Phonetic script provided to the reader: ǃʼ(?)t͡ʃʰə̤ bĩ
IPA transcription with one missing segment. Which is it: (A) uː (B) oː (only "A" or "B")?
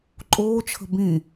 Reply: B